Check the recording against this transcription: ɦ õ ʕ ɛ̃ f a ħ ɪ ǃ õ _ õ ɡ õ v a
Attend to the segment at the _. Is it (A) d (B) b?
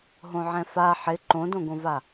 A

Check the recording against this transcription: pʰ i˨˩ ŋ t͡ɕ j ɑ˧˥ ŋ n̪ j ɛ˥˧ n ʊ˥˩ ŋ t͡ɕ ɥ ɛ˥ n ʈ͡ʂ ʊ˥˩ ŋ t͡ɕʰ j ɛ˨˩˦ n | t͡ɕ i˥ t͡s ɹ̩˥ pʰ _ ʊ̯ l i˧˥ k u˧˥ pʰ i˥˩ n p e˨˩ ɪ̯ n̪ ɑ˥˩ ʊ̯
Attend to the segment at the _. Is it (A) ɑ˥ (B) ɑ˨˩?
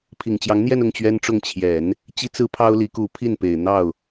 A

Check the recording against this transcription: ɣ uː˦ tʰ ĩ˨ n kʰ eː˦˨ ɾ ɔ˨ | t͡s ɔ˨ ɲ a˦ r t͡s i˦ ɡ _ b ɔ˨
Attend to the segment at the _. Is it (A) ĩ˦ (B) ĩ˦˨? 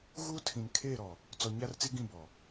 B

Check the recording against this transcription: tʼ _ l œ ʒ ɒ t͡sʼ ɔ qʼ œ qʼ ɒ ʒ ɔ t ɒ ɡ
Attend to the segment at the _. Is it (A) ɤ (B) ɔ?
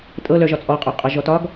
A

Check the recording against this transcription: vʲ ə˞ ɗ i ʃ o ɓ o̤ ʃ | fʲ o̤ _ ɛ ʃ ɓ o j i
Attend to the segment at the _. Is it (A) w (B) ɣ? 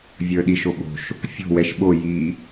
A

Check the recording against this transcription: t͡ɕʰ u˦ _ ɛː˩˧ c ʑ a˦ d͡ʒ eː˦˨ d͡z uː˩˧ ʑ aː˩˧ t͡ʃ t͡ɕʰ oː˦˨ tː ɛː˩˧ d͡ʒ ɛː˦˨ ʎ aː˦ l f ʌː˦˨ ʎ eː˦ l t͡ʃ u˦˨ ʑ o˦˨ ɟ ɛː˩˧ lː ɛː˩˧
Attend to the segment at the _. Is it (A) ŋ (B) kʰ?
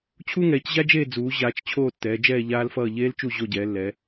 A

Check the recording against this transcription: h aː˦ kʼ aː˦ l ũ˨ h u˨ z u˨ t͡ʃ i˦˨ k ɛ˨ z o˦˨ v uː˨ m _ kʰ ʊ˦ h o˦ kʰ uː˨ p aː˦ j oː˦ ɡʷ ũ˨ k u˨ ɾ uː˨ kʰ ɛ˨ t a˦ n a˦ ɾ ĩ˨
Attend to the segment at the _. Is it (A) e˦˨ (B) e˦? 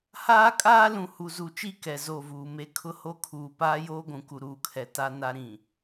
B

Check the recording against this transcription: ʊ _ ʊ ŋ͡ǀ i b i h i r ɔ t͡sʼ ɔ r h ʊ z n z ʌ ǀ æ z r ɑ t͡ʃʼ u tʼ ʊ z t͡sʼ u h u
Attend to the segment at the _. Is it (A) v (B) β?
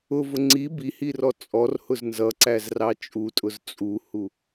A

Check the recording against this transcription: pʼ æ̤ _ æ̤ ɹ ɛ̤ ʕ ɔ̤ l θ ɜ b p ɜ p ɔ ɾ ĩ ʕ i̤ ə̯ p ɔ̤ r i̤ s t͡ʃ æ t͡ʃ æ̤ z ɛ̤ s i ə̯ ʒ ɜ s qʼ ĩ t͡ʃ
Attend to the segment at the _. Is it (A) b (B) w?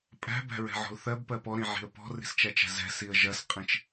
A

